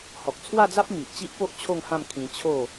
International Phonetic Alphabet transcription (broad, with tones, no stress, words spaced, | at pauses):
hɔ˨k̚t͡sʰwa˥˧d͡za˦p̚ mi˨ʔt͡ɕi˦ʔpo˦ʔ t͡ɕʰo˥˧ŋhã˥˧m kʰĩ˧ t͡ɕʰo˥˧